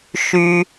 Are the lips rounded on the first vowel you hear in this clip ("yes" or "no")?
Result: yes